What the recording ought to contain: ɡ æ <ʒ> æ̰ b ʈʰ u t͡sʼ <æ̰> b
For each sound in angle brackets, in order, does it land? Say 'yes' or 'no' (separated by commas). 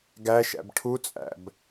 no, yes